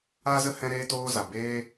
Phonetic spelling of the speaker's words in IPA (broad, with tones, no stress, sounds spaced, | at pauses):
a˦ z ə˦ h ɛ̃˧ ɾ eː˧ t oː˧ z a˨ b eː˦